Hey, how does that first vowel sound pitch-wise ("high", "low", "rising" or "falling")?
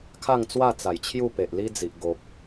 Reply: falling